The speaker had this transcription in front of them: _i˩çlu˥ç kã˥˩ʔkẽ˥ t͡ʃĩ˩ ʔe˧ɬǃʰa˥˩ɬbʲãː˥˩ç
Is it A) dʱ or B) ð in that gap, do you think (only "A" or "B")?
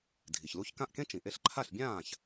A